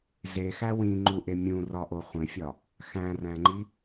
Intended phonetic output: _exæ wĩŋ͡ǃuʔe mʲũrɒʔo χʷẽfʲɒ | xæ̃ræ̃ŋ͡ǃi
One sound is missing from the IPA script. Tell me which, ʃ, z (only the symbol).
z